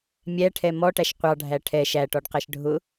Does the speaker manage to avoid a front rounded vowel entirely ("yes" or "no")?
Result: yes